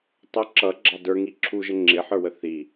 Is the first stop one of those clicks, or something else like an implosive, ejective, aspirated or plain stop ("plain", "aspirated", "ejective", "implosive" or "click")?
plain